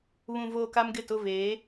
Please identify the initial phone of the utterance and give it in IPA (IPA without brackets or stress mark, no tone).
β